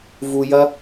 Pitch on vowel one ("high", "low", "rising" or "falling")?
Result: high